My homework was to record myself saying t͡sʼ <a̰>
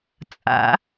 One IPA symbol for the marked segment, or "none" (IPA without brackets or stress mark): a̰